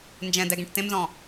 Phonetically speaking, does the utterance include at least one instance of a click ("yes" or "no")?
no